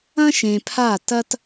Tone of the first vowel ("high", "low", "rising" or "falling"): high